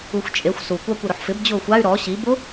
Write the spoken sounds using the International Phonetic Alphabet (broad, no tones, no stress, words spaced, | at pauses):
uxʷt͡ʃʼexʷ su kʷakʷɪɾʊħfɪb d͡ʑʊːxʷay̯ ɾɔ ɕi bʊ